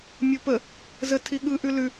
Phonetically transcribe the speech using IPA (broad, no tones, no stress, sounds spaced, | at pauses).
mʲ o p ə | z ə tʰ i ɠ ɯ ʔ ʉ l ʉ